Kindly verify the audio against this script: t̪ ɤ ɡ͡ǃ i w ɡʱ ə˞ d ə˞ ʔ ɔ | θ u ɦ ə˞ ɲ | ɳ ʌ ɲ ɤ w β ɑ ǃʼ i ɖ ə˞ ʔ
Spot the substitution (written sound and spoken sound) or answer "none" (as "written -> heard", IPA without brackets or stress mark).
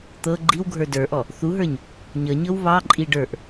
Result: ɳ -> ɲ